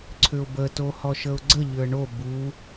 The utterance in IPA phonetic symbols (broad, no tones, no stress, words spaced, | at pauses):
ǀʰʏʊ̯bə tohɔʃəʊ̯ɡ͡ǀə ʎʏə̯ɳo bu